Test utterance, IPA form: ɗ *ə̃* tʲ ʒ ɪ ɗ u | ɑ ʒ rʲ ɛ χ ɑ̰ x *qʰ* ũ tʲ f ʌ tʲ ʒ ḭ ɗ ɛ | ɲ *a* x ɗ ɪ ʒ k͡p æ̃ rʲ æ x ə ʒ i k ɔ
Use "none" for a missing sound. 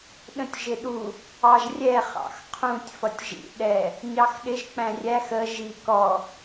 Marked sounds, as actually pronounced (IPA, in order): ə̃, qʰ, ɑ

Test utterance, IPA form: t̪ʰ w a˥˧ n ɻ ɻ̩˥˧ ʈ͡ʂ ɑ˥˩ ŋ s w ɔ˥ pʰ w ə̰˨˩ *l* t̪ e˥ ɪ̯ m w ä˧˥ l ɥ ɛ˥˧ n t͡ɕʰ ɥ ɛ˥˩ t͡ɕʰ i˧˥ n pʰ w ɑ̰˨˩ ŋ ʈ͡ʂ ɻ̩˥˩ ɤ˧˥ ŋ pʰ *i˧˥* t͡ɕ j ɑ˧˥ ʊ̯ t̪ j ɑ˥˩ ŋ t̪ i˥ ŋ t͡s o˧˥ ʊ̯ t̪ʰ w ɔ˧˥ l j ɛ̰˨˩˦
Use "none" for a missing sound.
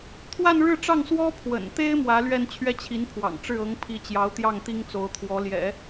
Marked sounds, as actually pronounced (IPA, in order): n, i˧˥

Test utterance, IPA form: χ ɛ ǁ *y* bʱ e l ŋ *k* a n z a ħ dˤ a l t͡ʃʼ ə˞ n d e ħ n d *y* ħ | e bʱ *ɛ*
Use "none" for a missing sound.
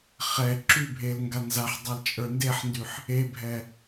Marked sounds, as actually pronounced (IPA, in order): y, ɡ, y, ɛ

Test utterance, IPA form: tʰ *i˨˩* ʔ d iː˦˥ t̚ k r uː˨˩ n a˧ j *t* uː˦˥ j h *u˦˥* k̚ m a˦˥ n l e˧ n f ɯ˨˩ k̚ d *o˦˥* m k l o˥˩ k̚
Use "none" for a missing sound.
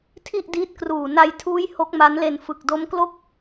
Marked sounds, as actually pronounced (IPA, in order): i˥˩, tʰ, o˦˥, o˦˥

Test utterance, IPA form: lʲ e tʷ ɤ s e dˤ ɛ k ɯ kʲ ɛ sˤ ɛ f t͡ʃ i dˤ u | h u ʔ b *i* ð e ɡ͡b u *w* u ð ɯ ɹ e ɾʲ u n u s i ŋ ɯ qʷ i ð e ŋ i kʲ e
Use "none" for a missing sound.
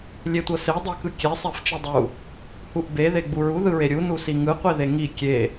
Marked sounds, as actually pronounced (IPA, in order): e, ɹ

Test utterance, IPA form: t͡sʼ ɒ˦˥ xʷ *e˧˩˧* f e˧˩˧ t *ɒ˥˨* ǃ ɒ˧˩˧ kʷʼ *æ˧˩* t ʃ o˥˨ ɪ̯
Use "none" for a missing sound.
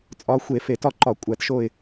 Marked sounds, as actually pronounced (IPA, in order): e˧˩˧, ɒ˥˨, æ˧˩˧

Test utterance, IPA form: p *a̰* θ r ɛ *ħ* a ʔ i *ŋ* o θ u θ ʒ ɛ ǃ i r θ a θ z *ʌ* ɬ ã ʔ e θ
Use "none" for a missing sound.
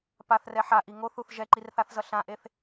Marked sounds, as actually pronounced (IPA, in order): a, ħ, ŋ, ʌ

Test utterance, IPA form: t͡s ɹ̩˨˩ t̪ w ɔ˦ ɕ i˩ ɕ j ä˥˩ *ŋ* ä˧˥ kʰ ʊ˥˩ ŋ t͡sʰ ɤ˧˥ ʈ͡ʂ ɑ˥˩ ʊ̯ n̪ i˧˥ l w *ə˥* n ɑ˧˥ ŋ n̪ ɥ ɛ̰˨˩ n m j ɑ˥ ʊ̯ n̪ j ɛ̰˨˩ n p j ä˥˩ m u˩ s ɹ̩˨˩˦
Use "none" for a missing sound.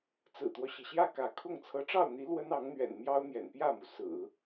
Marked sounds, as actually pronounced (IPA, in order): k, ə˥

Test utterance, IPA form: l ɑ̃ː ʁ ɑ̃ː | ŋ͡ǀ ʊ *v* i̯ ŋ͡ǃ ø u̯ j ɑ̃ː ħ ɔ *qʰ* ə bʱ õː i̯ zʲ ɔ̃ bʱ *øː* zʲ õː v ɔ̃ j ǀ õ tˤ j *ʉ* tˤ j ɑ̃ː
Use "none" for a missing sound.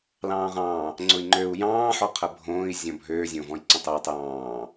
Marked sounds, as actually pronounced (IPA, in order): none, qʰ, øː, ø

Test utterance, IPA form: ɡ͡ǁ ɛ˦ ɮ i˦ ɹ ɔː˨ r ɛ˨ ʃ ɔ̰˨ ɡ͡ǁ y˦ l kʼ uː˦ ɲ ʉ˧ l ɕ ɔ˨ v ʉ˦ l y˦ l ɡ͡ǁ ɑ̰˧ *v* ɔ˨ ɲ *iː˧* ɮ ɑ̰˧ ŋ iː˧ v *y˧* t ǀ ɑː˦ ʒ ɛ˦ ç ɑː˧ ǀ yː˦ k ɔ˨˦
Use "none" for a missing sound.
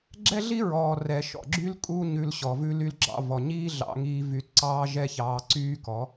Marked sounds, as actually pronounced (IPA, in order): v, iː˦, y˧

